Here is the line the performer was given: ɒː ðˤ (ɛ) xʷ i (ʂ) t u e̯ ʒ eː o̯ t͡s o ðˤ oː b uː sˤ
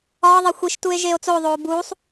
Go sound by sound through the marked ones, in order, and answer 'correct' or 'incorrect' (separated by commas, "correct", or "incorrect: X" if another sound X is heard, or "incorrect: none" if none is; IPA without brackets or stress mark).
incorrect: e, incorrect: ʃ